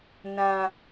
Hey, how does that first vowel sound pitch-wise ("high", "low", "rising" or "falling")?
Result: high